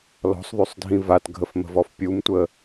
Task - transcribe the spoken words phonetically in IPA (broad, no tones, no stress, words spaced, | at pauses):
lɔ̤sˤðˤysˤdʱĩ vatɡʱəfmə̤vɔf pʲumtʷə